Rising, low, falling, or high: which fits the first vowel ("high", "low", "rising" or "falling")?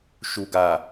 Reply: low